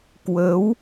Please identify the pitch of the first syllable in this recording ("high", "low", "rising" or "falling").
rising